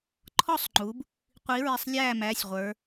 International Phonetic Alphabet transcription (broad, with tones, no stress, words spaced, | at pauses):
ǃʰɔ˥˩sˤŋ͡ǃu˩˧b | qʷi˩˧ɹɪ˩˧˩sˤ lʲæː˥˩mæ˩˧˩sʲʁʷə˞˩˧